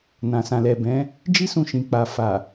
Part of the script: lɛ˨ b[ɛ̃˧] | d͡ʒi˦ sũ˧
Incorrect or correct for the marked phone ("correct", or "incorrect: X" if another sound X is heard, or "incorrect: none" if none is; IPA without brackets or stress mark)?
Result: incorrect: ɛ̃˨˦